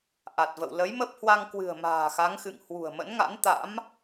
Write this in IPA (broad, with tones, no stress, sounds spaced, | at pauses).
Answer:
ʔ a˨˩ t̚ v ə̰˧˨ w l ə˨˦ j m ə˦˥ p̚ h w a˧ ŋ k w ɨ̤˨˩ ə̯ m a̤ː˨˩ x a˨˦ ŋ x ɨ̰˧˨ ŋ h w ṳ˨˩ ə̯ m ə̰˧˥ n ŋ a̰˧˥ n t̪ a̰˧˥ m